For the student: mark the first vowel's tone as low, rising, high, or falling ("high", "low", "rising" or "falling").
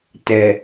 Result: low